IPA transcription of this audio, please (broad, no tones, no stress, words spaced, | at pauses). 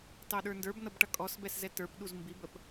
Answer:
tɑɗə˞ndə˞b nʌbʈʌkʼɔsbɛs zɛtə˞pɗuz mbibəp